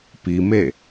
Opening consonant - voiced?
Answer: no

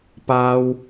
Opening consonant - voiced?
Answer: no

